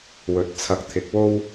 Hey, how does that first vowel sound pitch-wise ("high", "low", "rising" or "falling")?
rising